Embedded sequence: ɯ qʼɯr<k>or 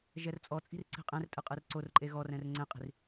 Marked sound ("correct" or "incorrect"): incorrect